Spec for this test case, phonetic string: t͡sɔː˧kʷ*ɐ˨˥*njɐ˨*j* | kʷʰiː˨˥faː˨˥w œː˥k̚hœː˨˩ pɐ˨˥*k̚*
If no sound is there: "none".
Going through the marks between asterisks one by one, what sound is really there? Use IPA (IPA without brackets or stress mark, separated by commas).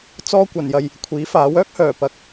ɐ˨˩, j, k̚